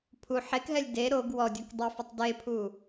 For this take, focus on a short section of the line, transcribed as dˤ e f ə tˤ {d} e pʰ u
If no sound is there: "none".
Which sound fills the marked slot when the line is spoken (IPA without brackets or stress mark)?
d